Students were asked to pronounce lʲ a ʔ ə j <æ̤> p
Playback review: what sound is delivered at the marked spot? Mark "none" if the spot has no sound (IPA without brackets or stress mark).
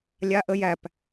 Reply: æ